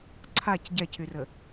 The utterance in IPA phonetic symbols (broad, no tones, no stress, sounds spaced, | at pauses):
ǀʰ a c ɟ ɛ cʰ y r ə